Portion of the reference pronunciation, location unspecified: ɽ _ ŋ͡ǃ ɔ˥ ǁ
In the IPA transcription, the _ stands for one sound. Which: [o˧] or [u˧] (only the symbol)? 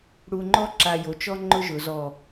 u˧